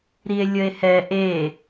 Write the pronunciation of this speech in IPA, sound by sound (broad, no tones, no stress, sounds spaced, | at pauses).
ɾ i e̯ lʲ ə e̯ h ɛ ʔ e